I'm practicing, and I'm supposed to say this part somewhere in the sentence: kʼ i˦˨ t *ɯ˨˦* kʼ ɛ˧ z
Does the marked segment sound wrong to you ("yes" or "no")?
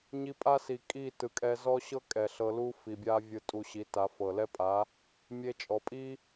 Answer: yes